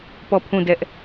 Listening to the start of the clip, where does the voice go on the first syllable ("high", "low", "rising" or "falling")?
falling